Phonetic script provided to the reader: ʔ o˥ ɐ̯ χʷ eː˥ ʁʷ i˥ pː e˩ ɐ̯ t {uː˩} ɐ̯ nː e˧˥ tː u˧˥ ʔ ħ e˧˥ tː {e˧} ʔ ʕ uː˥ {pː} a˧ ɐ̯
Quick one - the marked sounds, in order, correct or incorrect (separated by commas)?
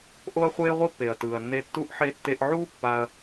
incorrect, correct, correct